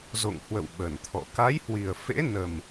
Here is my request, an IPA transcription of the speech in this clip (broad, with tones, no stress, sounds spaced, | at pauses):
z o̰˧˨ ŋ h w ə̰˧˨ w ɓ ə˧˩ n t̪ʰ ɔ̰˧˨ k a˨˦ j h w i˨˩ ə̯ f ḛ˧˥ n ə˨˩ m